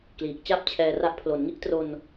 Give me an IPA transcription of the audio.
kliː˨˩k̚t͡ɕa˥˩p̚t͡ɕʰɛː˧ra˦˥ʔ pʰlo˩˦nŋi˦˥ʔtro˧n

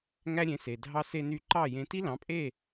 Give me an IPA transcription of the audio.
ŋæ˥ɾʲẽ˩˥ se˩dʱɑ˧ se˧ny˧ ǃɑ˥˩jẽ˧ ti˥lɑ̃˩˥pʼe˥˩

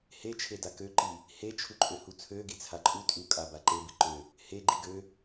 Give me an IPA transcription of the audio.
het͡ʃʰe dakøǃi | het͡ʃʰuǃʼøhu t͡sʰøɡi t͡sʰaǃʼu tʼu kʼabaǃebi ǃø | he ɡ͡ǃiɡø

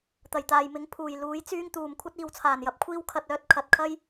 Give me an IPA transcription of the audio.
t̪ɐ˨˩jt̪aː˨jmɪ˨˥ŋ pʰuː˨˩j luː˨˥jt͡syː˥ŋt̪uː˨m kʷʰɐ˥t̚iː˨wt͡sʰaː˨˩njɐ˨˥p̚ kʷʰiː˥wkʰɐ˧t̚ œː˨˥t̚kʰɐ˨t̚ kʰɐ˥j

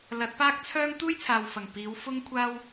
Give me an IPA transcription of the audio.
lɐ˨˥t̚paː˥k̚t͡sʰœː˥ŋ t̪uː˥jt͡sʰaː˨wfɐ˨˩ŋ piː˨˥w fʊ˥ŋkʷʰaː˥w

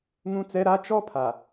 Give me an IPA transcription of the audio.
ŋũ˦t͡sɛ˦ ɾa˦t͡ʃɔ˦ pʰa˨

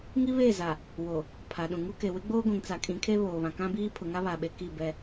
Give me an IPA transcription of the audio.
ŋi˦βe˦˨za˨ | wo˨ | pʰa˨ɗũ˨ŋu˦ ke˨wɪ˦ɡ͡boː˦ ɡʷĩ˨ŋt͡sa˨kʼĩ˨˦kʰe˦ βoː˨βã˨kã˦biː˦ pʰʊ˨ŋa˦βa˨ɓe˨ ki˦˨bɛ˦

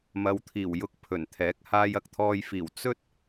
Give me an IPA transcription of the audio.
mɐ˨˧wt̪ʰiː˨˩wjʊ˧k̚ pʰɵ˨˩nt̪ʰɛː˨˥k̚ haː˧jɐ˨k̚t̪ʰɔː˧jfiː˨˩w t͡sɵ˥t̚

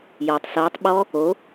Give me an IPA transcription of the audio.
jɔtˤ sɤːtˤ ɓɔ | o

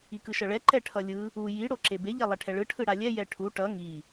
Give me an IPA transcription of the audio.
ikɯʃʌɭɛ ǃɛʈʰʌlʲɯ | u ji ɽoǁebe ʎɛlˠɛʈʰɛɭɯ ʈʰɯɽalʲɛ jɛʈʰu ʈʌ ŋi

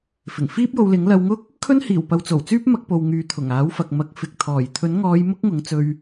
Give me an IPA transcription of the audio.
fɪ˨˩ŋfiː˥p̚jo˧wlɪ˨˥ŋ lɐ˧wŋʊ˥k̚ | kʰɵ˥nhiː˨˩w pɐ˨˧wt͡so˨˩wt͡syː˥p̚mɐ˧k̚ po˨w ŋyː˨˧ t̪ʰʊ˨˩ŋaː˨˥w fɐ˨k̚ mɐ˨˥k̚ fɪ˨k̚ t̪ʰɔː˨˩j t̪ʰɵ˨˥nŋɔː˨˧j mʊ˥k̚ŋʊ˨˥ŋt͡sɵ˧ɥ

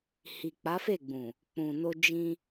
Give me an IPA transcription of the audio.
hi˨k͡pa˨˦fe˦˨ɡ͡bũ˨ | k͡pũ˨no˧ d͡ʒĩ˧

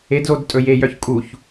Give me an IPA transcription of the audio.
edzod tʼɵjejœç kʼuç

